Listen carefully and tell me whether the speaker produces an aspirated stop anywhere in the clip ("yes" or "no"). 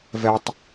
no